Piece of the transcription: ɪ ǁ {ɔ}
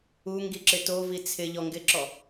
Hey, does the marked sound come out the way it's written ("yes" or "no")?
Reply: yes